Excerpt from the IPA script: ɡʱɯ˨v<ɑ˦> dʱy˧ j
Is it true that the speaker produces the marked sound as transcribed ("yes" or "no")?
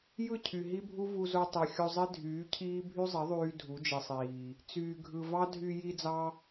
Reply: yes